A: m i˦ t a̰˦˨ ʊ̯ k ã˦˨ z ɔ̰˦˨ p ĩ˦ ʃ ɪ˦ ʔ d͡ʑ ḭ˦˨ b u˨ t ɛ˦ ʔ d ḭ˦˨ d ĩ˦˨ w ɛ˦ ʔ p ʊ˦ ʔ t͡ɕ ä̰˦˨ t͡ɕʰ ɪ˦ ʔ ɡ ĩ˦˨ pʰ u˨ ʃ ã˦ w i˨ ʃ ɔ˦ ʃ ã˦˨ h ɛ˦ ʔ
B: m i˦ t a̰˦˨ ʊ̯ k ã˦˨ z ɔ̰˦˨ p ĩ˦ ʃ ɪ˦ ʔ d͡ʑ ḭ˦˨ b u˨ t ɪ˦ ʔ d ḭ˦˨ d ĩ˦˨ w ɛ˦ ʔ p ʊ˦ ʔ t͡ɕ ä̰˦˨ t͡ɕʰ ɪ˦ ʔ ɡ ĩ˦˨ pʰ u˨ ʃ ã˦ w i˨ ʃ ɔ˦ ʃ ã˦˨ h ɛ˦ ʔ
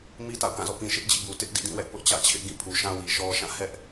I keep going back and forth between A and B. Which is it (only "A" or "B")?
B